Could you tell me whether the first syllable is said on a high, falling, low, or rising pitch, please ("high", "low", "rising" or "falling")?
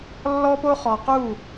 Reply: high